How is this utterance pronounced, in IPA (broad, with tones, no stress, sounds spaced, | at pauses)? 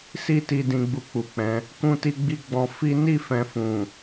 s i˦ t i˧ d ĩ˧ ɡ͡b u˧ k͡p u˨ k͡p ɛ̃˨˦ | k ũ˧ t i˧ ɡ͡b i˧ ɡ͡b ɔ̃˧ f i˦ n i˦˨ f ɛ̃˨ f ũ˨